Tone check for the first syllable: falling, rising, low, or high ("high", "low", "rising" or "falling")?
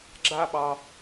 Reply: high